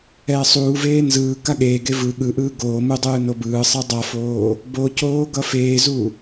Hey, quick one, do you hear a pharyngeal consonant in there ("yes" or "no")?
no